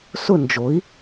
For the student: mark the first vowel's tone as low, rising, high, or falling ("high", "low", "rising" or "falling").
falling